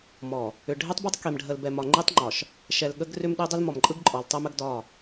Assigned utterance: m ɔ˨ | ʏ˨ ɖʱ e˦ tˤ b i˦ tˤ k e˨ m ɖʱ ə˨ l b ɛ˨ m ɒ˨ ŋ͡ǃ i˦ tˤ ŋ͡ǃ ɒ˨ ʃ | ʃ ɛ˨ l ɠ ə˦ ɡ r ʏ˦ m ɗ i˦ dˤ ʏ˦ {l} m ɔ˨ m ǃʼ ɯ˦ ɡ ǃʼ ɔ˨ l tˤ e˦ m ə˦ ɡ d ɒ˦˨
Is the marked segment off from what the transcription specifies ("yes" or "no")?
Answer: no